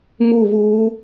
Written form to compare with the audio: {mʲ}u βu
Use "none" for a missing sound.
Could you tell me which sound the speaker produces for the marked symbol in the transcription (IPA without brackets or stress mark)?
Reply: m